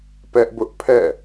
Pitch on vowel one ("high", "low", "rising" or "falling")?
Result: high